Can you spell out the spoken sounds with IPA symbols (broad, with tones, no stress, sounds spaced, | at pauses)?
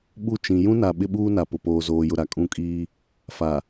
ɓ u˦˨ t͡ʃ ĩ˨ j ũ˦ n a˨ ɓ ɪ˦ ɓ uː˦ n a˨ p ʊ˨ p oː˨ z oː˨ j ʊ˨ ɾ a˨ kʼ ũ˦˨ kʼ iː˦ | f a˨